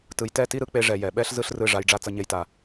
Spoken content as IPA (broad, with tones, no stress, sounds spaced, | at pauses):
t ɯ˨ j t ɛ˦˨ t i˦ ɾ ɯ˦ k͡p e˧ ʐ ɛ˨ j ɛ˨ ɓ ɛ˦ ɬ z ɯ˦ ɬ r ɯ˦˨ ʐ a˧ j ɖ͡ʐ a˦ t͡s ʌ˧ ɲ e˧ j t a˨